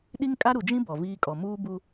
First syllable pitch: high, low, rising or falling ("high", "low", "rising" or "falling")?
high